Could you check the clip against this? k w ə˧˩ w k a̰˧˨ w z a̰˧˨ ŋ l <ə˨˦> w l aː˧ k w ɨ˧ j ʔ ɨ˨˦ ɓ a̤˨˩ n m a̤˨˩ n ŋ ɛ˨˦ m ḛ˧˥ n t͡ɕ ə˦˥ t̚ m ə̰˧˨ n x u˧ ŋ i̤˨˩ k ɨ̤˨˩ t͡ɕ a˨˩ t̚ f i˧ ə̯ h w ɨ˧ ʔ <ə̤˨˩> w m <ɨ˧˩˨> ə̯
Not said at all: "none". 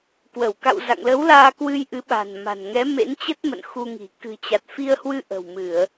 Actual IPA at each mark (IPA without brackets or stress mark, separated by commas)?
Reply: ə˨˦, ə̤˨˩, ɨ˧˩˨